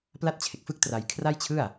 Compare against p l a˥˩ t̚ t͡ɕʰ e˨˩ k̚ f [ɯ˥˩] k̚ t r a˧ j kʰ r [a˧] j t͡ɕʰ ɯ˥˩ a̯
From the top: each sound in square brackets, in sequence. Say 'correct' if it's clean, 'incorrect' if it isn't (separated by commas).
correct, incorrect